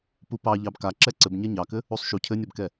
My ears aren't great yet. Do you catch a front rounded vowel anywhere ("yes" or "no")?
no